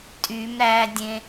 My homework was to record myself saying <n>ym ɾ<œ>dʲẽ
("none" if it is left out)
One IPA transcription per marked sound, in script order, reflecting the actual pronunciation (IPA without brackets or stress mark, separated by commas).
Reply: tʼ, æ